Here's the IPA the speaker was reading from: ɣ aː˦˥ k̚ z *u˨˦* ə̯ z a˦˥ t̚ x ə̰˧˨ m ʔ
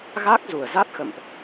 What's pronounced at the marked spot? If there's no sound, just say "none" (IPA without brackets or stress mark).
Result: u˨˩